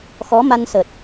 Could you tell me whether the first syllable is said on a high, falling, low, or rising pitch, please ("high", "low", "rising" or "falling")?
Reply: rising